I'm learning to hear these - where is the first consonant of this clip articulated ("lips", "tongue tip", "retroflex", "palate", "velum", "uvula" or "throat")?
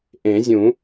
throat